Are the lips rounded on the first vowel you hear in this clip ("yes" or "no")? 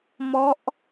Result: yes